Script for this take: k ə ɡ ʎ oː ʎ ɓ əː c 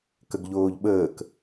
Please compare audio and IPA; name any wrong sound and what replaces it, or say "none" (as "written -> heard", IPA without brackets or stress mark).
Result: c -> k